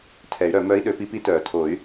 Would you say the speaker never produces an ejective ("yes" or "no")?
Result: yes